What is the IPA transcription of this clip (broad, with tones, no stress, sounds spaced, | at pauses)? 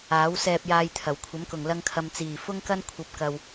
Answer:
aː˨˥ w s ɛː˧ p̚ j aː˧ j t̪ʰ ɐ˨˩ w kʷʰ ɐ˨˥ m k ʊ˨˩ ŋ l ɐ˧ ŋ kʰ ɐ˨ m t͡s iː˨˩ f ʊ˥ ŋ k ɐ˥ n kʷʰ ɐ˨˥ p̚ k ɐ˨ w